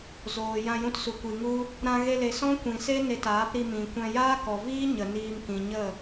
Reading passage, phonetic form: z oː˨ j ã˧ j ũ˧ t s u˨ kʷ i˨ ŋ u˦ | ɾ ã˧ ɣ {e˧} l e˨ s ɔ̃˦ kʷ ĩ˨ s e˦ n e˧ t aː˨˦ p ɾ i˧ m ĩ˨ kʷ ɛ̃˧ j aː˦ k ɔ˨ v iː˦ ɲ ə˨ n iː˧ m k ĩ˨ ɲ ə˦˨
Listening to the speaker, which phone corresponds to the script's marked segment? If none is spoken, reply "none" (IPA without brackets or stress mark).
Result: e˧